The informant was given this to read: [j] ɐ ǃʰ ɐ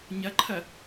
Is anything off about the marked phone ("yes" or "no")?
yes